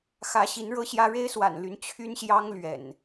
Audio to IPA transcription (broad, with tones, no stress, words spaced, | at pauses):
xä˨˦ɕi˨˦n ɻɤ˦ɕjä˦ ɻe˦ɪ̯swa̰˨˩nly˨˦n t͡ɕʰy˦nɕjɑ˦ŋ lɥɛ̰˨˩n